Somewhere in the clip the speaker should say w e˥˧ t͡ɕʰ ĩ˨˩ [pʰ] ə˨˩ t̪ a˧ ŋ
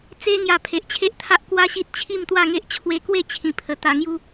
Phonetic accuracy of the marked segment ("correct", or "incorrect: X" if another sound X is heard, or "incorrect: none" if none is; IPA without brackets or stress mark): correct